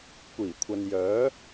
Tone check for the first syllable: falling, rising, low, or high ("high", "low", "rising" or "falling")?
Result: low